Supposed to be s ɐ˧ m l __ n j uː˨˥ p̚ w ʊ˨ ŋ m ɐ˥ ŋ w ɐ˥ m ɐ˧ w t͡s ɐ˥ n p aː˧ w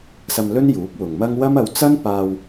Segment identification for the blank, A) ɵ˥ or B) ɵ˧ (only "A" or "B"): A